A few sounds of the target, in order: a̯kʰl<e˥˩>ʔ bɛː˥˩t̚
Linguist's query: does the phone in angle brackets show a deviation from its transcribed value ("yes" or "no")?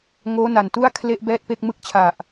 no